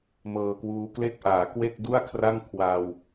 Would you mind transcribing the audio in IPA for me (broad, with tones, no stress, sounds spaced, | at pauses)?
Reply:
m ɤː˧ k w uː˧ k l e˥˩ k̚ ʔ aː˩˦ k w e˥˩ k̚ d u˥˩ a̯ kʰ r a˥˩ ŋ kʰ w a˧ w